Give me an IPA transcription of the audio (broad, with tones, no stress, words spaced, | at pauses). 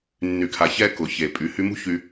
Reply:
nːy˨kʰa˨ çɛ˦kʊ˨çe˨ pʼy˨hy˧mṳ˦ çy˧